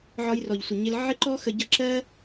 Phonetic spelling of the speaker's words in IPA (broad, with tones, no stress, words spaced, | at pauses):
ʕɒ˧jrɔ˨ʎsʷɪ˨ɲɪ˧l ʕɪ˦ǃɔ˦xə˧ ɟʌ˧ǁɜ˦